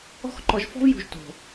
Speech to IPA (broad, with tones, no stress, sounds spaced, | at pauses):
ɔ̤˦ x ǃ ɔ˧ ʒ f ɔ̤˦ v j ṳ˧ ʒ t o̤˨